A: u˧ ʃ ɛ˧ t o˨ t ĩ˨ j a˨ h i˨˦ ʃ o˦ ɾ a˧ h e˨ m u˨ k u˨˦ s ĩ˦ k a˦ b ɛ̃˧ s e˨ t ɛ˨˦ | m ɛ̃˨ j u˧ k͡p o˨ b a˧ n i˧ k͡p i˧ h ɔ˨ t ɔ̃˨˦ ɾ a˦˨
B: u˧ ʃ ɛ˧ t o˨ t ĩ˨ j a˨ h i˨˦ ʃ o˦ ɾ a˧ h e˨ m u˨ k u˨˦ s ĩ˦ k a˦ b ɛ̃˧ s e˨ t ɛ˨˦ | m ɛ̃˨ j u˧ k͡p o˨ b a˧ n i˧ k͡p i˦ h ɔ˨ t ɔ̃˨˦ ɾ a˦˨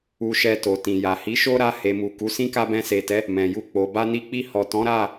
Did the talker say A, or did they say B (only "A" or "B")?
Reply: A